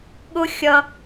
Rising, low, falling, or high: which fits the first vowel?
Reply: high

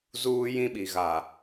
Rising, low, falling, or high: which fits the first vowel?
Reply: high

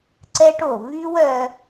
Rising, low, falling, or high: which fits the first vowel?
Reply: high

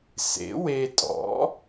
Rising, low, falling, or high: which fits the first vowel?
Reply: rising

